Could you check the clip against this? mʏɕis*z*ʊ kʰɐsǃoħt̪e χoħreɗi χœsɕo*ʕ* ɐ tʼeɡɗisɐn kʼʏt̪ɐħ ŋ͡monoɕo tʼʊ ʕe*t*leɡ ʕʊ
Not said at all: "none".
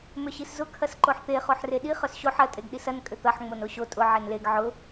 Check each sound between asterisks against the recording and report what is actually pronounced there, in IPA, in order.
z, ħ, n

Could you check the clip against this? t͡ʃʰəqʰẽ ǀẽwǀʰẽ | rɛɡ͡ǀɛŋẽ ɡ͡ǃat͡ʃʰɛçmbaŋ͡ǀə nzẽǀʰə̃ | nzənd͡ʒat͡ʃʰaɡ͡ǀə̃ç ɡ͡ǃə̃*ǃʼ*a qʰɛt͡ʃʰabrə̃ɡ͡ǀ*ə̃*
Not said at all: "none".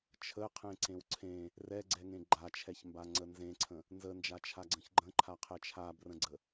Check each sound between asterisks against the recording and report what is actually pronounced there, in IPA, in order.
ǃʰ, ə

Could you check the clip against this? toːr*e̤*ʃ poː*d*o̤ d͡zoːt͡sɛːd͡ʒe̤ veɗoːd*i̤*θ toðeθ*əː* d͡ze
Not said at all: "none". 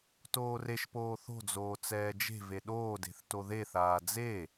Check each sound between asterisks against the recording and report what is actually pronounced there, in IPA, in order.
e, θ, e̤, aː

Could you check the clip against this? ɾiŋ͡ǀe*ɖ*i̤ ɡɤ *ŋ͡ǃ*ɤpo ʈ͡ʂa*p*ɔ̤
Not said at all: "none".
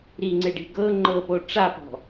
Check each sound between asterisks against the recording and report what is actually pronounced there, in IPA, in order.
ɖ, ŋ͡ǃ, p

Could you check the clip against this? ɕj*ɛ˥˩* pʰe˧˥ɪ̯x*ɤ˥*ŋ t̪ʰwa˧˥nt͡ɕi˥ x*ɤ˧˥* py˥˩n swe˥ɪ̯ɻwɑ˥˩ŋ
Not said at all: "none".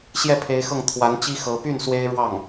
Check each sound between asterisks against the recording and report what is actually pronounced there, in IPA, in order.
ɛ˥˩, ɤ˥˩, ɤ˧˥

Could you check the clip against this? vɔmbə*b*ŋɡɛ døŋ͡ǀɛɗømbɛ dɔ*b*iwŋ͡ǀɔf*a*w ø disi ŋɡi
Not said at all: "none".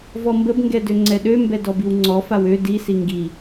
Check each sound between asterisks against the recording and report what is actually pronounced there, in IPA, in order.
b, b, a

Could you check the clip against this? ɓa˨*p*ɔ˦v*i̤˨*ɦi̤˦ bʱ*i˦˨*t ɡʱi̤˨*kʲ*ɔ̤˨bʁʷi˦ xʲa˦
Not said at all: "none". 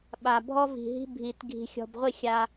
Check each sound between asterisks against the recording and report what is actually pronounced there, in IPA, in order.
bʱ, i̤˨, i˨, xʲ

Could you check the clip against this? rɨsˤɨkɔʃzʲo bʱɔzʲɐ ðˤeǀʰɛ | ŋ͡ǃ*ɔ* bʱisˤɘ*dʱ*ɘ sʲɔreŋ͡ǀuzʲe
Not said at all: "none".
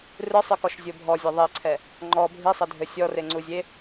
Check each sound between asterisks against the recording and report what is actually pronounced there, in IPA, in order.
ɔ, dʱ

